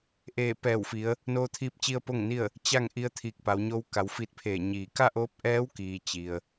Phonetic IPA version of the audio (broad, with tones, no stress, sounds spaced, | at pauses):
ʔ eː˧˩ p ɛː˧˩ w f i˩˧ ə̯ | n oː˧ t̪ʰ iː˧ p̚ t͡ɕ i˧ ə̯ p o˥˨ ŋ n i˥˨ ə̯ | t͡ɕ a˥˨ ŋ ʔ i˧˥ ə̯ t̪ʰ iː˧˩ k̚ p a˩˧ w ɲ o˧˥ w k a˩˧ w f i˧˥ t̚ pʰ eː˧˩ ɲ iː˧˩ k a˥˨ ʔ oː˧˥ p̚ ʔ ɛː˧˥ w k iː˩ t͡ɕ i˩ ə̯